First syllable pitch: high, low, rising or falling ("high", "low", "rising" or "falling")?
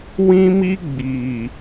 high